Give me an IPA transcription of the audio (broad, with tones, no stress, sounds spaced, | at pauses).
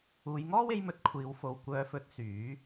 uː˨˧ j ŋ ɔː˥ w e˧ j m ɵ˨ t̚ kʷʰ iː˨˧ w f o˨ w kʷ œː˨˧ f ɵ˨˥ t̚ s yː˨˥